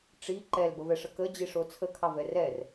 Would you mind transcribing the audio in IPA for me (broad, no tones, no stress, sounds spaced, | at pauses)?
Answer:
ʈ͡ʂ i ǃ ɛ l b ə v ɛ ʂ ə k ə d͡ʑ i ʂ o t͡sʰ ə kʰ ɑ v ɛ r ɛ r